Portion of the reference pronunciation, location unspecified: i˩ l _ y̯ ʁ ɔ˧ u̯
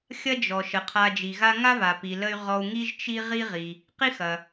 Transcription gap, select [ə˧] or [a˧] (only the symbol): ə˧